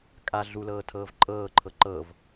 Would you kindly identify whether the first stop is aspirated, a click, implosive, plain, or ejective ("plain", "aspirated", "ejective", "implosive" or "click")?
ejective